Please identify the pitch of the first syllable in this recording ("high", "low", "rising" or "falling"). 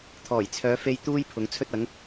low